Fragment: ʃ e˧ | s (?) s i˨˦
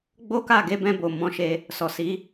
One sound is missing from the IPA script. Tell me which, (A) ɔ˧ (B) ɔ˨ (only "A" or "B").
B